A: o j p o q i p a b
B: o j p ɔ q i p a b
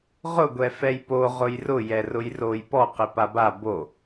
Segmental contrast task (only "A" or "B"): B